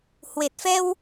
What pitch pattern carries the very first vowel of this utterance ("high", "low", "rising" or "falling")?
low